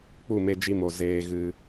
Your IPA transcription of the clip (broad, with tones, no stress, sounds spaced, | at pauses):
k͡p u˦˨ m e˧ d͡ʒ i˧ m o˨ z eː˧ ɣ ɨ˧